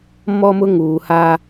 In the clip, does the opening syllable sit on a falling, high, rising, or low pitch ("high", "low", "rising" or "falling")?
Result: high